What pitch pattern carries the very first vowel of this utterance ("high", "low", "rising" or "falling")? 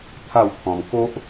falling